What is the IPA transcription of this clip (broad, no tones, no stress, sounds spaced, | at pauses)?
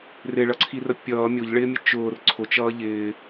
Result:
r ɪ ɭ ʌ ǀʰ i r ə pʲ ʌː mʲ o ʎ ɭ ɪː mʲ ə t͡ʃ ʊː r ǀʰ ʊ t͡ʃ ʌː ʎ ɪː